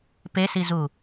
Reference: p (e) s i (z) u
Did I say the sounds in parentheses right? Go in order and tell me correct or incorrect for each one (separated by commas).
correct, correct